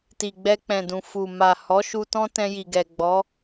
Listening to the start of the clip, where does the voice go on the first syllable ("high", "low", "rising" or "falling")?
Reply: low